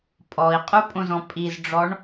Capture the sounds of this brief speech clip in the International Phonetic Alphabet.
pʼ ɔ i̯ qʼ u pʼ õ z ɔ̃ pʼ i z ɖ͡ʐ ɔ ɳ

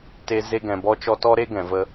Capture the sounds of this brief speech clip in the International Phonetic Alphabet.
t e˧ z e˧ ɡ ɛ̃˨ b ɔ˧ t͡ʃ ɔ˧ t ɔ˦ ɾ e˦ ɡ ɛ̃˨ v ə˧

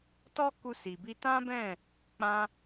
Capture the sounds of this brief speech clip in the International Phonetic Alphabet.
t ɔ˦ k u˧ s i˨ b i˧ t ã˦ b ɛ̃˦˨ | k͡p ã˧

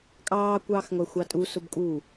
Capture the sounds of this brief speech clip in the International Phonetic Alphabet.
kʼ ɑː kʷ ɑː x ŋʷ æ xʷ ɑ tʼ u s ʊ b kʼ uː

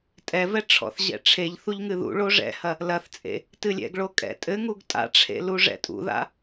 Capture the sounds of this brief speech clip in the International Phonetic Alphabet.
tʼ ɛ v ɛ ʈ͡ʂʰ ɔ̰ θ ʑ ɛ̰ ʈ͡ʂʰ e ʎ θ u ʎ ŋ ɨ ð ṵ ɭ o ʐ ɛ̰ h ɐ | l ɐ θ t͡sʼ ḛ | t ɨ lʲ ɛ̰ ɡ ɭ o kʼ ɛ̰ tʼ ɘ ŋ u ɡ tʼ a̰ ʈ͡ʂʰ ḛ l u ʐ ɛ̰ tʼ ṵ ð a̰

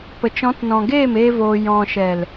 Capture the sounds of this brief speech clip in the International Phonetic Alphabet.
p ə˨ t͡ʃ ɔ̃˨˦ t n ɔ̃˨ ɡ eː˦˨ m eː˦ v oː˧ j ɔ̃˨ ʃ ɛ˨ l

